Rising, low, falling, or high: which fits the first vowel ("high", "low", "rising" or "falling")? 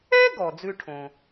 high